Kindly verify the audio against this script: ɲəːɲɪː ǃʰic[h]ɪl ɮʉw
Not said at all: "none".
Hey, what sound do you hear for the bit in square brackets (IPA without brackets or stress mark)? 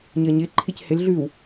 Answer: h